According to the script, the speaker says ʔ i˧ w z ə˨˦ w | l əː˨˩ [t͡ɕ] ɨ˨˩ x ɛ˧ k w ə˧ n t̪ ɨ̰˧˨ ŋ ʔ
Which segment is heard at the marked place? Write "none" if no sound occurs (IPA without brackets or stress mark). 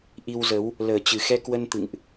t͡ɕ